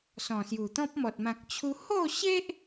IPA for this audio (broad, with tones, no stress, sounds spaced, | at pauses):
s ɔ̃˨˩ s j u˨˩ t̪ ɔ̃˦ p̚ m ɔ˨ t̚ m ã˨ k̚ t͡ɕʰ u˧ h o˥˧ ɕ e˦ ʔ